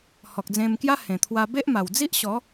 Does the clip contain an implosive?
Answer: no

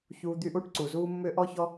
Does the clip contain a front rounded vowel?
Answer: yes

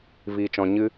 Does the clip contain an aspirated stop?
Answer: no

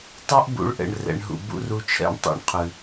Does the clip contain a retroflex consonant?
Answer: yes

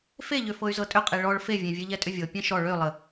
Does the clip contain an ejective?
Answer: yes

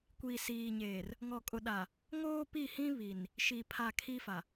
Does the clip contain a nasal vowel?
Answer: yes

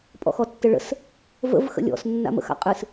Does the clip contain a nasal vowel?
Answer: no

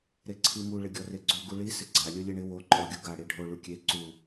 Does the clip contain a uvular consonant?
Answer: no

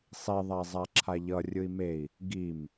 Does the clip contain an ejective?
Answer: no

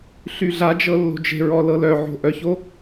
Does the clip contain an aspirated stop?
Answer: no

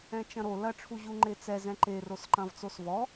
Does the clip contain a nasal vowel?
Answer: yes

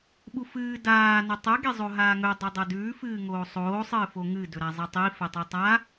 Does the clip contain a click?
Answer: no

